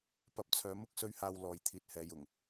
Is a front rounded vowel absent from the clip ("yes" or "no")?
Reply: no